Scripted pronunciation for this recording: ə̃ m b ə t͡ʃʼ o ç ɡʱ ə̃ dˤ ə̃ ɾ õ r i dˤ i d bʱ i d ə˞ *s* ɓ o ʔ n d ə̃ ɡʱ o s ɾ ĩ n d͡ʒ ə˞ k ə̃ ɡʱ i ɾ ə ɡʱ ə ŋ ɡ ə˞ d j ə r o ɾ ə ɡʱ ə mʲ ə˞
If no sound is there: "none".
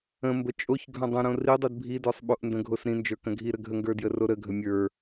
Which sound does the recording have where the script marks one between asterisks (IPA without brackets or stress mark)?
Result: sˤ